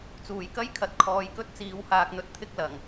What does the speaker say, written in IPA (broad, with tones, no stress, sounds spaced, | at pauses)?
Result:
t͡s uː˨˩ j k ɐ˥ j kʰ ɐ˨ t̚ kʰ ɔː˨˧ j k ɵ˥ t̚ t͡s iː˨˧ w h aː˧ k̚ n̪ ɵ˧ t̚ t̪ʰ ɪ˥ k̚ l ɐ˨˩ ŋ